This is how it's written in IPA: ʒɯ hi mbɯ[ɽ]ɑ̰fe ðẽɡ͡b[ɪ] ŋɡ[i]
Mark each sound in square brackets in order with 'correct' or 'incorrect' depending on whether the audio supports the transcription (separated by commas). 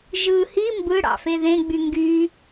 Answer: correct, incorrect, incorrect